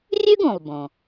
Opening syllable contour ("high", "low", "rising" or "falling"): high